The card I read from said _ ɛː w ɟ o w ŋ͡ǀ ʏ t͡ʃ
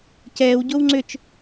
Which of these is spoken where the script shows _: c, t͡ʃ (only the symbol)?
c